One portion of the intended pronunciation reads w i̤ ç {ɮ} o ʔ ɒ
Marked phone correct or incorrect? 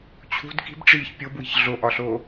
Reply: correct